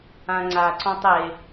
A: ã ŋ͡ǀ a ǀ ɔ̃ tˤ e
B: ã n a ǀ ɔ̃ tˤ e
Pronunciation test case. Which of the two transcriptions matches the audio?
A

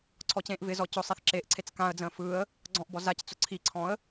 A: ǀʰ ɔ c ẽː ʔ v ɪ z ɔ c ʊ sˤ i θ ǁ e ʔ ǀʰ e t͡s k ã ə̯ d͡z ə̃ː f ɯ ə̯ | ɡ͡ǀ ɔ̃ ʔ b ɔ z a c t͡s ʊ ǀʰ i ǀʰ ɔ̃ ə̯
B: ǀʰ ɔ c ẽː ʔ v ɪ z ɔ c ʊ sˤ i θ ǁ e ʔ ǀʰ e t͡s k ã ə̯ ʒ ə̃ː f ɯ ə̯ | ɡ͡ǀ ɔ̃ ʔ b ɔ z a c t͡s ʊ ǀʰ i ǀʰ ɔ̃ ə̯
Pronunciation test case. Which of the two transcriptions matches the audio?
A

